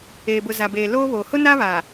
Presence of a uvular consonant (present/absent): absent